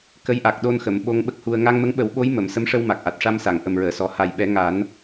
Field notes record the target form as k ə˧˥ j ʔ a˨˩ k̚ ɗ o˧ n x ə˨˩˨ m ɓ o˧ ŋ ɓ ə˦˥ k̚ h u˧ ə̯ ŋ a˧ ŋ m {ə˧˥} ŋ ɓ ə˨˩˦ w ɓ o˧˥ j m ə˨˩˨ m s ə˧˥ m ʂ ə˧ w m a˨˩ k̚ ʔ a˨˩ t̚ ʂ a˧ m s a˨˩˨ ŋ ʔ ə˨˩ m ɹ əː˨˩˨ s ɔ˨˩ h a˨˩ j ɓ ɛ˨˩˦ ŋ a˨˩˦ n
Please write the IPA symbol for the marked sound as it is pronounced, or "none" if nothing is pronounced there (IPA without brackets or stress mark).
ə˧˥